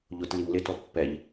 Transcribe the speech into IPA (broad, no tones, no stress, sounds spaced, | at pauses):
ʎ ʊ t l i ŋ l ɪ t ɔ pː ɛ ʎ